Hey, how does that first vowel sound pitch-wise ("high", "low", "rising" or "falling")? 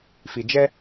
low